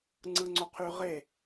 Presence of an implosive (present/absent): absent